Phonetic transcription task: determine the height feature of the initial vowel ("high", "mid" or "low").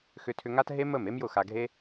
high